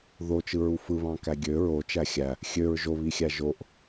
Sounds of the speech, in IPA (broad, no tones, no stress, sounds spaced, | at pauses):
ð o t͡ʃ ɯ ɹ u f ɯ β ɑ̃ k æ ɡʲ ø ɹ o t͡ʃ æ xʲ æ | xʲ ø ɹ ʒ o β i xʲ æ ʒ o ʔ